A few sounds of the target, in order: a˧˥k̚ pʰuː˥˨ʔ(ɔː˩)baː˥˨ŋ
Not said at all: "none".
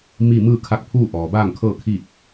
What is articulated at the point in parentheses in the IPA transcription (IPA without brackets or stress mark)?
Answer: ɔː˩